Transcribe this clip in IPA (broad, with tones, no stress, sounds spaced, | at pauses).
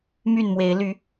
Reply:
m y˥˨ n m w e˨˦ ɪ̯ l y˨˦